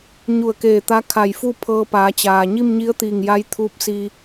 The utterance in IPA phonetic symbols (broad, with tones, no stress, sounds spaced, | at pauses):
ɲ u˧˩ ə̯ k eː˧˩ t̪ a˧˥ kʰ a˧˩ j f u˥˨ pʰ ɤː˧ p aː˩˧ t͡ɕ aː˩ ɲ i˥˨ m ɲ i˧˥ ə̯ t̪ iː˧˩ ŋ j a˧˥ j t̪ʰ uː˧˥ p̚ s i˧